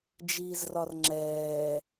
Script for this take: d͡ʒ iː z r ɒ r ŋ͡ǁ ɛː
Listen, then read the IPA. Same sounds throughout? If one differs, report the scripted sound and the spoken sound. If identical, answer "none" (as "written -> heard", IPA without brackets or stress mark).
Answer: none